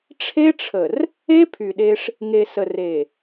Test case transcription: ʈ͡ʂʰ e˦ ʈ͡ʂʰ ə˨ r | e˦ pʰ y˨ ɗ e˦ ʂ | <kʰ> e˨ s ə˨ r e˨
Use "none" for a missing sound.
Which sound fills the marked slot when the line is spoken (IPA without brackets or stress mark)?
ŋ